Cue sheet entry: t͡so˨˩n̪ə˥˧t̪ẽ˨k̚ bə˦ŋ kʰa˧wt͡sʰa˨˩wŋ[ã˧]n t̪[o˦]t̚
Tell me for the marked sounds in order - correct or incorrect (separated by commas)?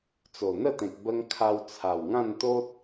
incorrect, correct